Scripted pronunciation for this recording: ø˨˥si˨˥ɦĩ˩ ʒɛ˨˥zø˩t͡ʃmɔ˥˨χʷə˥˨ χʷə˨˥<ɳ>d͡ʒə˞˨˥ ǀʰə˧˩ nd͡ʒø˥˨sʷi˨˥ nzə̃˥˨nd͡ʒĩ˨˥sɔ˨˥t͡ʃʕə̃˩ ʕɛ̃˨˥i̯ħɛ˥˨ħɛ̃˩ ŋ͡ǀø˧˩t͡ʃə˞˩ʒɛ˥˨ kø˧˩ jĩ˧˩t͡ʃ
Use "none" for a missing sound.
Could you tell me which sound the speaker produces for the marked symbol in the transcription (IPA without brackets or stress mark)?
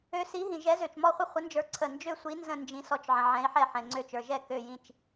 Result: n